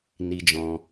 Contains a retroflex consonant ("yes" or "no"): no